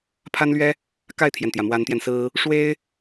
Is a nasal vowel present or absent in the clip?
absent